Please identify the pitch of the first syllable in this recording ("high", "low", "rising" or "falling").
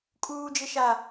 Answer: low